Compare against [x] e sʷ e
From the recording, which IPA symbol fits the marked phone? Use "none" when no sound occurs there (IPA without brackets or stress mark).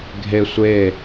ɡʱ